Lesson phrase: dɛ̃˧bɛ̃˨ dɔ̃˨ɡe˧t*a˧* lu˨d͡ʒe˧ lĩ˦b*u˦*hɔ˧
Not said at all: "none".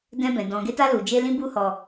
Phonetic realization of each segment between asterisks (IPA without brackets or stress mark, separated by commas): a˧, u˦